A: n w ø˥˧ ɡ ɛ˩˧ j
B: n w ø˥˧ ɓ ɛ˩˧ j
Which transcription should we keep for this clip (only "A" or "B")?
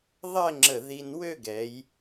A